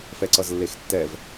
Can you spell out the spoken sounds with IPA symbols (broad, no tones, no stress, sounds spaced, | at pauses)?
f ɛ ǀ ʌ z lː e x tː ɛ v